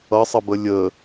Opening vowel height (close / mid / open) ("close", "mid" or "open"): mid